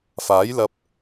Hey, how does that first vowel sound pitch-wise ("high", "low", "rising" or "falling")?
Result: rising